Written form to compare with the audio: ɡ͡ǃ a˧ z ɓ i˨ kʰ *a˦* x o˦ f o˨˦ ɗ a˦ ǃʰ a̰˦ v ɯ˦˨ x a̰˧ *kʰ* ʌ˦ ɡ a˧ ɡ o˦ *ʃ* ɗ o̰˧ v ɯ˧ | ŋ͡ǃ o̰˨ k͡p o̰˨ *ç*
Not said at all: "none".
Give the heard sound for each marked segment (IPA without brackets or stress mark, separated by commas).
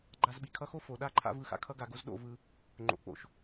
ʌ˦, kʰ, z, ʃ